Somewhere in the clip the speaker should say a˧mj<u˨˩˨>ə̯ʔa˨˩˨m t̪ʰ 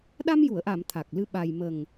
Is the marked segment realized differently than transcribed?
no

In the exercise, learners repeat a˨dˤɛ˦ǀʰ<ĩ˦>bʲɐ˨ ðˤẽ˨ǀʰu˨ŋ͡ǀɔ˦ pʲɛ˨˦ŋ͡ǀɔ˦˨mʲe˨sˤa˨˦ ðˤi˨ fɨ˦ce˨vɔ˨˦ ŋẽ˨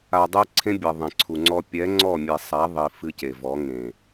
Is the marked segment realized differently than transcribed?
yes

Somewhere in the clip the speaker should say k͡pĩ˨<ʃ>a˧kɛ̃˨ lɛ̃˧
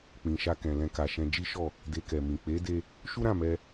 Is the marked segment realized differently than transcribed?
no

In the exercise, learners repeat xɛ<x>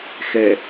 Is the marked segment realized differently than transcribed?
yes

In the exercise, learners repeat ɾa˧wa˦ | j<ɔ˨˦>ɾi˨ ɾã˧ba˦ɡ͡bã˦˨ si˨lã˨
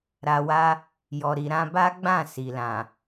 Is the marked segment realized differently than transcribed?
yes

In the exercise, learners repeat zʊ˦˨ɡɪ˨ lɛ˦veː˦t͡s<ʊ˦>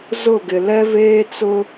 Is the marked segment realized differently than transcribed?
no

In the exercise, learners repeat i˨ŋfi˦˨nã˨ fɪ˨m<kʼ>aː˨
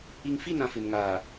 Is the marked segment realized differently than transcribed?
yes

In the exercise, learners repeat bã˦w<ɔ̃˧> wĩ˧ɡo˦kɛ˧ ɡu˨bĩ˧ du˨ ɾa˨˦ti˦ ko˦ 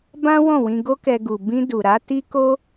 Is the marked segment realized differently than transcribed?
yes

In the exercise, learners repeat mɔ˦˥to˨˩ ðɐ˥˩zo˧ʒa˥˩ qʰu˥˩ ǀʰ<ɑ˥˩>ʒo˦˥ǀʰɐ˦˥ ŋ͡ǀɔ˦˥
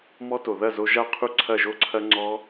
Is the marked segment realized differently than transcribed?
yes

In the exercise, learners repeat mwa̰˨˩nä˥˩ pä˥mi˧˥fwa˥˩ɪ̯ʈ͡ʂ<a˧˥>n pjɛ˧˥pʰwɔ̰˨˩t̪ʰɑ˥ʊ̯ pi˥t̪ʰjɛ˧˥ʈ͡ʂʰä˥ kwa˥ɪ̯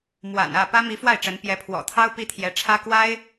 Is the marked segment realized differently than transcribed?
yes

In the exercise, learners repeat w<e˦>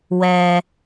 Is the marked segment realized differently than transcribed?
yes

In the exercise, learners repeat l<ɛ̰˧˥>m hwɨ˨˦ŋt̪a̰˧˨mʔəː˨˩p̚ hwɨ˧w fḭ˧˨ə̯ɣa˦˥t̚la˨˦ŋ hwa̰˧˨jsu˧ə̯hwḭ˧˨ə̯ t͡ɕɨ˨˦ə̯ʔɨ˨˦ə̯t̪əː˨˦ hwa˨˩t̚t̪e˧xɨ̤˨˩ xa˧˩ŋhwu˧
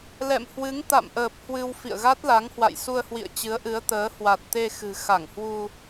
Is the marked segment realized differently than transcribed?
yes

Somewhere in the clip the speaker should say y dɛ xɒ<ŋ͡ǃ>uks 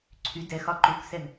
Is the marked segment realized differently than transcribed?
yes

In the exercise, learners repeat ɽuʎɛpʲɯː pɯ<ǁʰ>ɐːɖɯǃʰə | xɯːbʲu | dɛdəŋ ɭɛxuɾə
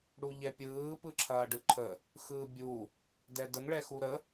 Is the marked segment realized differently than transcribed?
no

